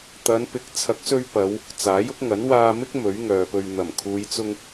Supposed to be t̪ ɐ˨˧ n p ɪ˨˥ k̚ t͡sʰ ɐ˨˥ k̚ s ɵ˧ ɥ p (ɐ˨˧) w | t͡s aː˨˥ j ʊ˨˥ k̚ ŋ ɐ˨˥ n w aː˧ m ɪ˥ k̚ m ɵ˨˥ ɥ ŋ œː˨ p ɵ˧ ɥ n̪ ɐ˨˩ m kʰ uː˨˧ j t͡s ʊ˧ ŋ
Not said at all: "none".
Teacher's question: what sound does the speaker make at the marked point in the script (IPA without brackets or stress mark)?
ɐ˨˧